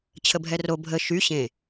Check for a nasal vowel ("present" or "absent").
present